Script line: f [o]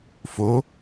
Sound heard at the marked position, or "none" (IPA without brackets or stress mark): o